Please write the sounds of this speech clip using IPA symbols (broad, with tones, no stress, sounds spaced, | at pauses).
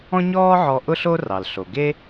ɔ̃˥ ɲ ɔː˥ ʕ ɔ˧ ʔ ʊ˥ ɬ o˥ r ɑ˩ l ɬ o˩ ɡ e˥